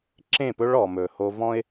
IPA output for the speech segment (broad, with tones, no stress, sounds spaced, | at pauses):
ǁ ẽ˦˨ p ɵ˦ ɭ ɔ˨ m ɵ˨ h o˦ v ɔ̃˦ ɪ̯